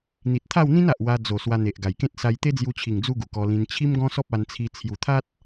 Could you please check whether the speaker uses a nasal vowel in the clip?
yes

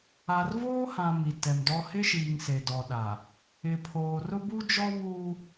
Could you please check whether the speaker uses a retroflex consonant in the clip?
no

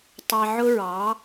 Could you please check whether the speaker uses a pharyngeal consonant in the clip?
yes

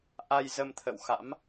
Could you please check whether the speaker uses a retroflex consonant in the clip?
no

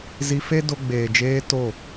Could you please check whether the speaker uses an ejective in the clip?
no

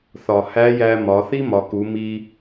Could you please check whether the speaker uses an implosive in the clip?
no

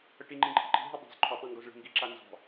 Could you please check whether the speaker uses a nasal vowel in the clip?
yes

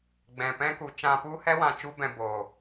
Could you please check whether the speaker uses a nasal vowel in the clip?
yes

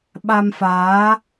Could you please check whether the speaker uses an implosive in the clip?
yes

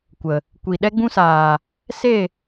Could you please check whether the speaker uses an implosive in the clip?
yes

